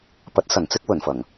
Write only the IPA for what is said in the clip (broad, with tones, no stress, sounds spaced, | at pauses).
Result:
p ɐ˨˥ t̚ s ɐ˨˩ n t͡s ɪ˥ k̚ w ɵ˨˩ n f ɐ˨˩ ŋ